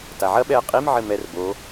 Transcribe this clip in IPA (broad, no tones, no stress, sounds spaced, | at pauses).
t a ʕ ɐ ɓ ɛ ə̯ qʼ i m ʕ ɘ m ɛ r b o